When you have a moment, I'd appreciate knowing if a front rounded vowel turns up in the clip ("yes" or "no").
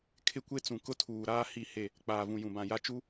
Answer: no